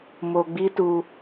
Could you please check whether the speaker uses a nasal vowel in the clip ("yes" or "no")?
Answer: no